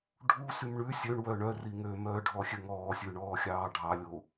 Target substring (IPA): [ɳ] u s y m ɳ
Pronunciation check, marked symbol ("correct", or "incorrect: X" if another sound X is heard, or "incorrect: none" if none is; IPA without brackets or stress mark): incorrect: ɖʱ